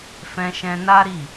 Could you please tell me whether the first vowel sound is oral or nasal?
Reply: nasal